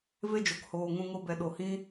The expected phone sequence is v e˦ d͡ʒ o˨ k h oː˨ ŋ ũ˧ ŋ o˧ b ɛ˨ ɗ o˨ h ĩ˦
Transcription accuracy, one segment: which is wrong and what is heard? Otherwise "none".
none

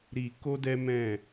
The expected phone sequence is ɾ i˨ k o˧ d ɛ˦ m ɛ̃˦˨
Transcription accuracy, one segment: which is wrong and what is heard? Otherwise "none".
none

